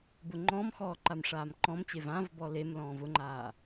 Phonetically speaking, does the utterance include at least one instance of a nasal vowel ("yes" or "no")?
yes